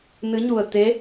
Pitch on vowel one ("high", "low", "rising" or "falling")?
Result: rising